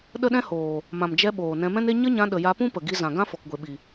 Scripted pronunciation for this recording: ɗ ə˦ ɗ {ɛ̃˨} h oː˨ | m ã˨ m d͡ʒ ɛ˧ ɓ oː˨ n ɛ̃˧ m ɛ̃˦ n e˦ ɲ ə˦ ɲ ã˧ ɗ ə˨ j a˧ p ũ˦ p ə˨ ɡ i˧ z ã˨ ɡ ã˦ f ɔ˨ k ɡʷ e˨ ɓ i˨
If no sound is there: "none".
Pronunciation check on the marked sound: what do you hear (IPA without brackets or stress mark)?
ɛ̃˦